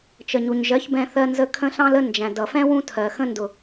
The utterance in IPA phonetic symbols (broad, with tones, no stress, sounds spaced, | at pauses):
t͡ʃ ə˨ ɲ u˨ ɲ ʒ ɜ˨˦ ç b ɛ̃˧ θ ɜ˧ n z ə˧ kʰ ə̃˦ ɬ ɑ̃˦ l ə˦ n d͡ʒ æ̃˨ d ʌ˨ f ɛ̃˦ w ũ˦ tʰ ɜ˨ x ə̃˧ n d ʊ˨